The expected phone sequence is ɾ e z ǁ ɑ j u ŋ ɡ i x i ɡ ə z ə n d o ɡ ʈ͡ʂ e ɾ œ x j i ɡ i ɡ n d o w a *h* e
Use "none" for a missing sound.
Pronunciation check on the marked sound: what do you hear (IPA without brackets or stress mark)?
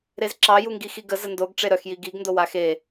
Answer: x